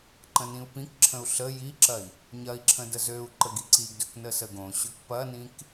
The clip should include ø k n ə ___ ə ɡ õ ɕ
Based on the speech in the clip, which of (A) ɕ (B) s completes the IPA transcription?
B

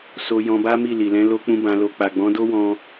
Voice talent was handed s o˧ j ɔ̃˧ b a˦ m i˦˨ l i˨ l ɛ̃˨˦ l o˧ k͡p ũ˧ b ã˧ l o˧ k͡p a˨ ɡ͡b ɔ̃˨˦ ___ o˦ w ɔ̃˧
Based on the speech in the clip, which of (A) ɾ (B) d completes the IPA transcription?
B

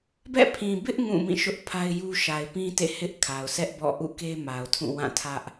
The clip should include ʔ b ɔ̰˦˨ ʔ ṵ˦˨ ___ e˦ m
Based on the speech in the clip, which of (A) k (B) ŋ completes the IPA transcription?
A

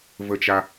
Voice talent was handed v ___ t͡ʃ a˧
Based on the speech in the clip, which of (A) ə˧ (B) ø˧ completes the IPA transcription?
A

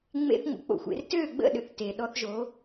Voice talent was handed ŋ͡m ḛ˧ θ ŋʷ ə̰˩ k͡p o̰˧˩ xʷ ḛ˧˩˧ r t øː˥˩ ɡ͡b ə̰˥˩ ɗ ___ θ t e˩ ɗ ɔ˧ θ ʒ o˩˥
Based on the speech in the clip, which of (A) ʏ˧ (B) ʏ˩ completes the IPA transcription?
B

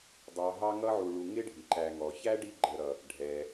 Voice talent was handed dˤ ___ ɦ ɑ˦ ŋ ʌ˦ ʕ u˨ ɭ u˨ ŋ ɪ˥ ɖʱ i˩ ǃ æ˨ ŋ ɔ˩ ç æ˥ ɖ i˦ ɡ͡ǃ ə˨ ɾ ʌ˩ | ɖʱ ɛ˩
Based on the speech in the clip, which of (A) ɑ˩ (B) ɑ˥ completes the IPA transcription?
A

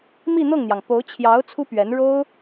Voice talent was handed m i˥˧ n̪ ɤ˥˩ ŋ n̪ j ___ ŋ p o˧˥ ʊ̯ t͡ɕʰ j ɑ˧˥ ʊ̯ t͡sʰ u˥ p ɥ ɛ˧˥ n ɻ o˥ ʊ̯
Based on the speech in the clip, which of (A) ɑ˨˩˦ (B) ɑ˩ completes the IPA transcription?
B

